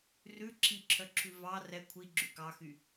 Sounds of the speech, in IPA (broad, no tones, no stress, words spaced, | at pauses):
rʉ ǁʰiǁʰœǁʰʉ vɑ rɛ kʷʰiɡ͡ǁy kɑxy